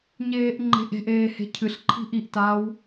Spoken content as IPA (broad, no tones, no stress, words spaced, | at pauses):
ɲeːʔŋ͡ǃe̤ʔe̤ʔeː he̤cʰɨɬǃʰi̤ ʔiʔtaːw